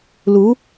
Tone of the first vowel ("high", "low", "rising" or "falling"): rising